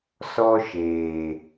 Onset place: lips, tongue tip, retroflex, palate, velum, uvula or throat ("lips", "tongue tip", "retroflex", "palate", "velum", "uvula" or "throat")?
tongue tip